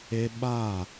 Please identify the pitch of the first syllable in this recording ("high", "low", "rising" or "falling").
high